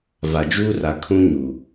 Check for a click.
absent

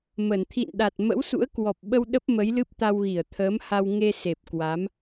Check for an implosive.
present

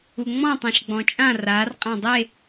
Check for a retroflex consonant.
absent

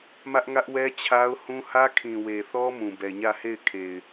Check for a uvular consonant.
absent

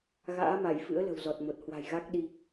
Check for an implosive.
present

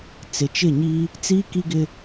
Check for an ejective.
absent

